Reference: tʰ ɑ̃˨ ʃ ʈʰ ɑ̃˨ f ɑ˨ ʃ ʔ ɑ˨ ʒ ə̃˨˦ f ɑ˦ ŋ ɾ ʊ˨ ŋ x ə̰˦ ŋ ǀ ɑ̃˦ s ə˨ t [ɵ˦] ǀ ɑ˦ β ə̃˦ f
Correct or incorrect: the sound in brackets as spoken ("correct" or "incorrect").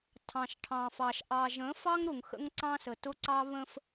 incorrect